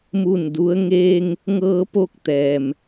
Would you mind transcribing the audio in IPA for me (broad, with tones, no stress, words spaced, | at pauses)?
mu˥˨ndu˧˥ə̯ ŋeː˧ŋ | ŋɤː˧po˧k̚ t̪ɛː˩m